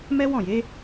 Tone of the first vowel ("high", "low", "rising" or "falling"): high